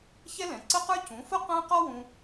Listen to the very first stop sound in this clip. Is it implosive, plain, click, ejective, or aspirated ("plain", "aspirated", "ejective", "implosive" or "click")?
click